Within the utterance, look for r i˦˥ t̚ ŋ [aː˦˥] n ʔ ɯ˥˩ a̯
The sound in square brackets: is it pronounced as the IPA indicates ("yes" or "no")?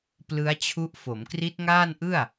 no